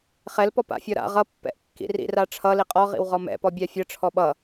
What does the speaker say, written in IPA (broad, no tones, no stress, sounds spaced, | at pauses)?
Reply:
χ ɛ l p ɔ p a̰ fʲ ɔ ɾ a̰ ʁ ʌ pː ɛ̰ ʔ kː ḭ r ḭ r a ʈ͡ʂʰ ʌ l i qʼ ɔ ʁ ḭ w ʁ ɔ m ɛ̰ p ɔ bʲ a fʲ ʌ ʈ͡ʂʰ ɔ ɓ ʌ